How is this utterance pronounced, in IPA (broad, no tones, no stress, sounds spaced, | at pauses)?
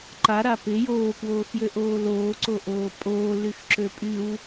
ǃ a ɾ a p ɪ j oː k w oː x j ø ʔ oː l oː ǀ o ʔ oː pʼ oː l y x ǁ ø pʼ y w